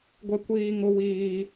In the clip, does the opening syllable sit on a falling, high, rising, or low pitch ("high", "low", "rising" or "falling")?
high